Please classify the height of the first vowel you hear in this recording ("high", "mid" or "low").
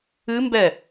high